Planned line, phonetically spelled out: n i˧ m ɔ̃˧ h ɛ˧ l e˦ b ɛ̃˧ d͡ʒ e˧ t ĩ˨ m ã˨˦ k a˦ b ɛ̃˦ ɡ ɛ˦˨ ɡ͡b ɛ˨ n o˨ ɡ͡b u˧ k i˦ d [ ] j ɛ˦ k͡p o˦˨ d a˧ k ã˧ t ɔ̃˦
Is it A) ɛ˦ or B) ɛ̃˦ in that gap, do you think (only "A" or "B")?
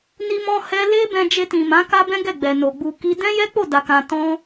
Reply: B